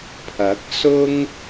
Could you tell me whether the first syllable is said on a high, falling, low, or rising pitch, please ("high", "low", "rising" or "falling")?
rising